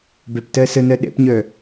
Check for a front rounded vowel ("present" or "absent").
present